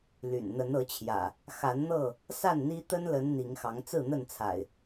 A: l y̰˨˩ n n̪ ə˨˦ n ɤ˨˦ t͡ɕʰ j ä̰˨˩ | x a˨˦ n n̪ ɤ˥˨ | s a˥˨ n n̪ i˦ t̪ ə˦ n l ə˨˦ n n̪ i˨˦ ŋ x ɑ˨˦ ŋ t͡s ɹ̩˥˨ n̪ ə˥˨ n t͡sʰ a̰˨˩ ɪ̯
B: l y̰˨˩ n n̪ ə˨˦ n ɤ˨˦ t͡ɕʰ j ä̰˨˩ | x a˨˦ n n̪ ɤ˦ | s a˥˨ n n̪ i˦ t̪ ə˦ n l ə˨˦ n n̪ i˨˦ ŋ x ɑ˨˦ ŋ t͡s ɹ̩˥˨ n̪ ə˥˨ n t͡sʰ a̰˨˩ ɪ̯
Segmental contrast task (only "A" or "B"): A